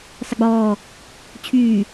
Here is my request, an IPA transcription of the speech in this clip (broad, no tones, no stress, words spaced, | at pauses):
sˤɪɡ͡bɔː | t͡ɕʰyː